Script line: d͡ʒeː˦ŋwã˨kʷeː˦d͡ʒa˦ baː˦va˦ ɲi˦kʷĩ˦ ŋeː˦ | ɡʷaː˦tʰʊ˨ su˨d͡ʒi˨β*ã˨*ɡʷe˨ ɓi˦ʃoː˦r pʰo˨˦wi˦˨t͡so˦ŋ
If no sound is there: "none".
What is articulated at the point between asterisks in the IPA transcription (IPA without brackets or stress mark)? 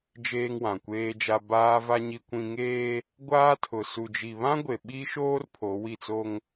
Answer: ã˦